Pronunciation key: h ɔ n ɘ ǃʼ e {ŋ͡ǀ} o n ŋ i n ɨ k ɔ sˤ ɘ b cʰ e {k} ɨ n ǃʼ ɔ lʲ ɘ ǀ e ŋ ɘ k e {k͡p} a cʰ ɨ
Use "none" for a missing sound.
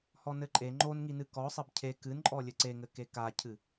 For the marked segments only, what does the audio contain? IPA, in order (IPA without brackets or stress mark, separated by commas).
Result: ŋ͡ǃ, k, k